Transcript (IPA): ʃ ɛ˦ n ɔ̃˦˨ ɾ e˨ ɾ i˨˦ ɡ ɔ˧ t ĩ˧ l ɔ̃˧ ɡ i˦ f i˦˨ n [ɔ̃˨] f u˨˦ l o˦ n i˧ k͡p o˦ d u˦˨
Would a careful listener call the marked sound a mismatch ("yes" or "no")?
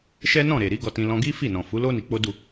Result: no